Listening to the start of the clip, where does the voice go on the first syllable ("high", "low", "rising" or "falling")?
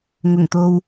low